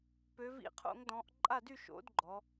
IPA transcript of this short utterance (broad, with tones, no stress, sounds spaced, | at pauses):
p ø˩˧ v ḭ˧˩˧ qʰ o̰˧˩˧ ŋ d ɔ̃˩˧ ʔ ǃʼ a˥˩ d y˥˩ ʃ o̰˨˥ d ɡ͡ǃ ɔ˩˧